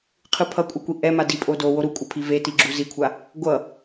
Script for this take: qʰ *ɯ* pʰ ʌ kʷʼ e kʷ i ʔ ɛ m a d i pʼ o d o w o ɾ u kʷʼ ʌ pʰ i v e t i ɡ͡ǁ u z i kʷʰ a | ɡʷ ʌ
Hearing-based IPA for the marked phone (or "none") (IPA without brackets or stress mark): ɯ